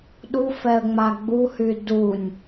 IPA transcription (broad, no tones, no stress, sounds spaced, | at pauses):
ɗ u f ɛ ə̯ ŋ͡m a ɡ͡b u h y d u nʲ